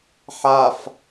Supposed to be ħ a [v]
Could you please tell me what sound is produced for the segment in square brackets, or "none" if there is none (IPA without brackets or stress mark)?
f